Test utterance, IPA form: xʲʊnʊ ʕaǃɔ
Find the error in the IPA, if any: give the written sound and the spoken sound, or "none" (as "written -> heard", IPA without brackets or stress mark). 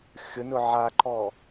none